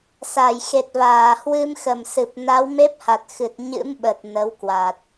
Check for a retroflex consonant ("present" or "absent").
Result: absent